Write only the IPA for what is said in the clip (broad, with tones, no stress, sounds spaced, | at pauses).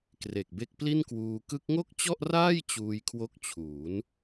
k r e˨˩ k̚ b e˦˥ k̚ p l i˥˩ n k w uː˧ k ɯ˦˥ k̚ ŋ o˥˩ k̚ t͡ɕ ɔ˥˩ ʔ r aː˥˩ j t͡ɕ uː˧ j kʰ w o˦˥ k̚ t͡ɕʰ uː˩˦ n